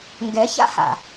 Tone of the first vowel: rising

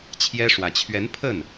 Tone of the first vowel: high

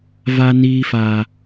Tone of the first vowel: high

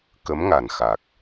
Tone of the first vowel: rising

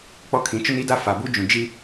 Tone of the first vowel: high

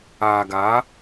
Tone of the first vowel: low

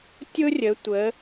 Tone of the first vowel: high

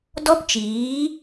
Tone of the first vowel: high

